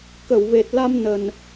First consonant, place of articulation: velar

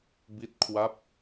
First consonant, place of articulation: labial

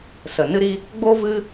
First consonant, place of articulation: alveolar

